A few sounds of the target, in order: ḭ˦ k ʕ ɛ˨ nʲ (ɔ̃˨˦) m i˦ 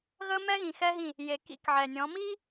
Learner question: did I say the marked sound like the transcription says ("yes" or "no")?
yes